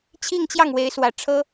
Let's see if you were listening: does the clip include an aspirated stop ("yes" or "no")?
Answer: yes